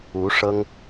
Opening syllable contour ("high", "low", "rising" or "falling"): rising